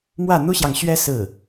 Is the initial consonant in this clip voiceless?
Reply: no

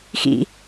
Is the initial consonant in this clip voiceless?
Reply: yes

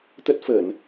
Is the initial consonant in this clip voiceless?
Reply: yes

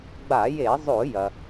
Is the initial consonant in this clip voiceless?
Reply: no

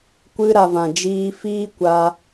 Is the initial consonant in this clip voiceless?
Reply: yes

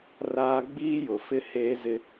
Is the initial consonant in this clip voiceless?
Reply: no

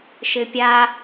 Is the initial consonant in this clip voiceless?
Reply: yes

